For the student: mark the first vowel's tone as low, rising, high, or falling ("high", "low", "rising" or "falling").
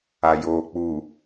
low